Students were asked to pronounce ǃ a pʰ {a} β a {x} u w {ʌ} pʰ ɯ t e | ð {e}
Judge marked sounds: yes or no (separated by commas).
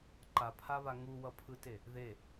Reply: yes, no, yes, yes